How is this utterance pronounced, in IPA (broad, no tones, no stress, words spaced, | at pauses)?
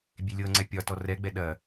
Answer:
bʲelʲɤŋ͡ǀɛ pʲɒtɔ rɛɡ͡bɛ ɗɐ